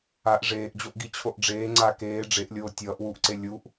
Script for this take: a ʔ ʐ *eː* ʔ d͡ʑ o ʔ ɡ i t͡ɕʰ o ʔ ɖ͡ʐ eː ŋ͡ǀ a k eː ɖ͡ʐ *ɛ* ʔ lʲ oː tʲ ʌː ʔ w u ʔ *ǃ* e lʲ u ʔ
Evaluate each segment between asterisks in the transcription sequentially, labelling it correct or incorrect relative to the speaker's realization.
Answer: correct, incorrect: e, incorrect: ǀ

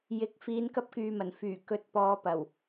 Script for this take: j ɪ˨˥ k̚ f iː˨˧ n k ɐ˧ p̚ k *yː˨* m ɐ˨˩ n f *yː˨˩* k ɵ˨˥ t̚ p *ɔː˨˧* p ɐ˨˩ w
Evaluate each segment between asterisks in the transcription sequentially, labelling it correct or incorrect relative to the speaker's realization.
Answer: correct, correct, correct

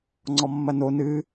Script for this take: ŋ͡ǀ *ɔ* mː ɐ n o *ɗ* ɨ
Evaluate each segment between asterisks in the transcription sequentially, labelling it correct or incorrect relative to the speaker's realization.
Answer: correct, incorrect: n

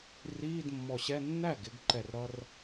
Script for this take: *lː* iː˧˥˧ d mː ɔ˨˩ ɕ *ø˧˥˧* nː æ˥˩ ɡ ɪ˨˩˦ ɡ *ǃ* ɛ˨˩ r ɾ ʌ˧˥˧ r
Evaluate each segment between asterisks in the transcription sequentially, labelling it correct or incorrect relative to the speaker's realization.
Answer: incorrect: r, incorrect: ɛ˧˥˧, correct

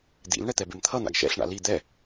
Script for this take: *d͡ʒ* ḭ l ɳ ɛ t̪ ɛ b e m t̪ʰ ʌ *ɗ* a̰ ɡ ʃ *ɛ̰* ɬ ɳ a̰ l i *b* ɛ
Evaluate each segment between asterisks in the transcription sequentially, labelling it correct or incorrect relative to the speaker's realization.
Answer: incorrect: d̪, incorrect: n̪, correct, incorrect: d̪

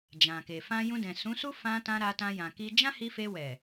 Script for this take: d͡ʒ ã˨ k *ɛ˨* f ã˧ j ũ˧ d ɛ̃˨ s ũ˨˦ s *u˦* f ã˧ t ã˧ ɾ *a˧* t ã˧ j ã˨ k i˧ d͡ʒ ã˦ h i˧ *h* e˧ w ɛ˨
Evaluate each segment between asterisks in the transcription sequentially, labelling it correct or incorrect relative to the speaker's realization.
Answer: incorrect: e˨, correct, correct, incorrect: f

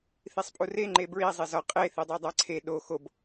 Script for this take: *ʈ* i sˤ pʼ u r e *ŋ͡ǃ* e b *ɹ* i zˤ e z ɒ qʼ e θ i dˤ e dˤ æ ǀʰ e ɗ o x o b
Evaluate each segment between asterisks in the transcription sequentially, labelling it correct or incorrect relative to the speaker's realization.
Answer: incorrect: θ, correct, correct

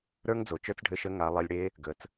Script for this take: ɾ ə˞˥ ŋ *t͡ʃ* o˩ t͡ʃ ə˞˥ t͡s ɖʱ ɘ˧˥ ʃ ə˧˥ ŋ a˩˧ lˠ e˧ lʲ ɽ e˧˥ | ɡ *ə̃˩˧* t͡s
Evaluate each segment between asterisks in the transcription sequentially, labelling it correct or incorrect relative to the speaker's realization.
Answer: incorrect: d͡z, incorrect: ə˩˧

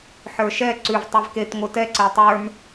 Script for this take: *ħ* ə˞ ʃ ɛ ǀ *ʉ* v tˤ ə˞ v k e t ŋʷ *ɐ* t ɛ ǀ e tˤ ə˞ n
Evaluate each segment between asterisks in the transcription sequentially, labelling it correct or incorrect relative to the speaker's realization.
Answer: correct, correct, incorrect: ə˞

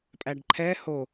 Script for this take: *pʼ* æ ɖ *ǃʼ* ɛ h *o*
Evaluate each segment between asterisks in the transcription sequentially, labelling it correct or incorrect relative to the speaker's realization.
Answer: correct, incorrect: ǃʰ, correct

